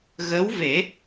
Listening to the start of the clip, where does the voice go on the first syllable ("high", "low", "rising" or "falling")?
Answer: rising